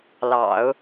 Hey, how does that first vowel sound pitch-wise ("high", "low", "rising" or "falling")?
low